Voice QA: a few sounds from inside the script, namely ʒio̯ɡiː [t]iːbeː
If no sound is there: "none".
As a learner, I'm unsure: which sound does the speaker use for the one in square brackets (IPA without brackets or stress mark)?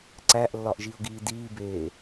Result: d